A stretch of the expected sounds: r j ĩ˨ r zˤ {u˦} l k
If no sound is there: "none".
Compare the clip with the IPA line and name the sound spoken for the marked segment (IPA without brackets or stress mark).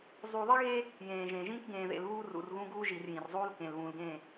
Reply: uː˦